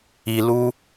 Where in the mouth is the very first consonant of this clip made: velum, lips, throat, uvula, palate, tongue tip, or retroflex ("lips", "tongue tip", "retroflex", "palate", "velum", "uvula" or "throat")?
tongue tip